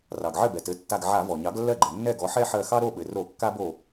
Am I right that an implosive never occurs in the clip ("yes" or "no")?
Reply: no